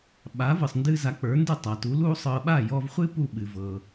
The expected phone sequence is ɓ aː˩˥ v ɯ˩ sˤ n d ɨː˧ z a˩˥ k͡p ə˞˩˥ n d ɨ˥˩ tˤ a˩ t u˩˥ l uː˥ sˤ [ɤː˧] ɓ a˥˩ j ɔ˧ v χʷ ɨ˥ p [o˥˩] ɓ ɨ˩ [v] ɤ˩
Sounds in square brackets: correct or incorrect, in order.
correct, incorrect, correct

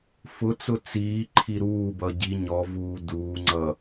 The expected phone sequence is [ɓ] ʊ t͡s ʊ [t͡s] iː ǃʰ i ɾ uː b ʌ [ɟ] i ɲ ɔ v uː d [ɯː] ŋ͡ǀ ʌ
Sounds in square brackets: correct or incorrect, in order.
incorrect, correct, correct, incorrect

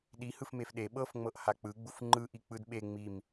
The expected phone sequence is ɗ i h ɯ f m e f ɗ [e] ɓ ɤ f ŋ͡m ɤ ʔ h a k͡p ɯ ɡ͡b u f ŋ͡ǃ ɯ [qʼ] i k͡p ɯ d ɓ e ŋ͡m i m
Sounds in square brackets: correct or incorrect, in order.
correct, incorrect

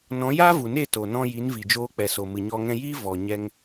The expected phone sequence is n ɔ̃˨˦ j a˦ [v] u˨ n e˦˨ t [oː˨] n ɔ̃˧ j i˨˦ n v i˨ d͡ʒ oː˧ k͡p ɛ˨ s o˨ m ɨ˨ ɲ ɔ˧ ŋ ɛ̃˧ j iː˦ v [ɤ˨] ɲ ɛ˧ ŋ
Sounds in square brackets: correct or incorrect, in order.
correct, incorrect, incorrect

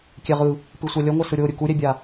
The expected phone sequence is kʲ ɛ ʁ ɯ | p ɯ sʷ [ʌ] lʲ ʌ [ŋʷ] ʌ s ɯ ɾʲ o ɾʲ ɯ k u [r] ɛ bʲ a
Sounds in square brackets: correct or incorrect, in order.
incorrect, correct, incorrect

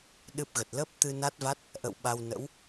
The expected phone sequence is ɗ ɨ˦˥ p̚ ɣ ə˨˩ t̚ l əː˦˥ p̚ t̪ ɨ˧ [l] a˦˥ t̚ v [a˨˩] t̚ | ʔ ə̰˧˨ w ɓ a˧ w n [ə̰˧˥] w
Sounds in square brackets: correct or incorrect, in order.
incorrect, incorrect, correct

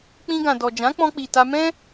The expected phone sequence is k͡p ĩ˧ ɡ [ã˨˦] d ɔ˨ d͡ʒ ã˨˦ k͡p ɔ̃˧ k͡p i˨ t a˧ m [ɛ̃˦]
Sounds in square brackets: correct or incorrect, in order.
incorrect, correct

